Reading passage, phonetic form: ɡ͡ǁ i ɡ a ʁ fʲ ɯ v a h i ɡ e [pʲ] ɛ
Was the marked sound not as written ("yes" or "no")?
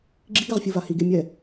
yes